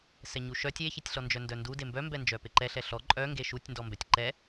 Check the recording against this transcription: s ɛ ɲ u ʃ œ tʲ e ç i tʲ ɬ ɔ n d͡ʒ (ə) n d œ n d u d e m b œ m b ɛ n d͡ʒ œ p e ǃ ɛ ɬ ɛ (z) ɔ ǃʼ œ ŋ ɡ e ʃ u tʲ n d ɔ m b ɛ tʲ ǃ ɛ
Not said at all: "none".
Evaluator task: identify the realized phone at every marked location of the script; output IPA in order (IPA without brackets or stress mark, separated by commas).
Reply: œ, ɬ